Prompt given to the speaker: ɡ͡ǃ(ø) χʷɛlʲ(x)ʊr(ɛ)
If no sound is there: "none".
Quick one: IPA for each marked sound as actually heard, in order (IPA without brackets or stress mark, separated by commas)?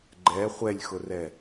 ɛ, x, ɛ